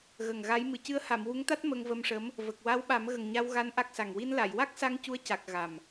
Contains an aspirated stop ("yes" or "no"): no